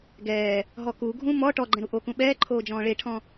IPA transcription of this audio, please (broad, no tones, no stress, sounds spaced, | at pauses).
ɡ ɛː | ɦ ɔ k u ɡʱ ũ m ɔ ʈ ɔ ɡ͡ǃ ɛ̃ ɾ u ʔ o k ũ ɓ ɛː ǃʰ oː d͡ʒ ɔ̃ː ɭ e ʈʰ ɔ̃